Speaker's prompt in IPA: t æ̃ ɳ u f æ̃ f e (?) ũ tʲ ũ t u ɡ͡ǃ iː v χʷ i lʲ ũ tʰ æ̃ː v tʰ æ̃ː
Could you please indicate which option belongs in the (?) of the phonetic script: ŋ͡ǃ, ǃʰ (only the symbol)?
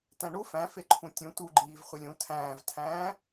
ǃʰ